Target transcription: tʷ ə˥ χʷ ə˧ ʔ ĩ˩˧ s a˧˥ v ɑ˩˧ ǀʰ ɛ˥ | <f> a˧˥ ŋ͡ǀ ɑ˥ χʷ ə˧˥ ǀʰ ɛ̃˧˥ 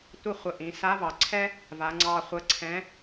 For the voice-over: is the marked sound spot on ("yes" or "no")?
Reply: no